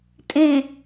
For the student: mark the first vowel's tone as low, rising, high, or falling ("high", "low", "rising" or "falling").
low